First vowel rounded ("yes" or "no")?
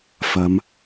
no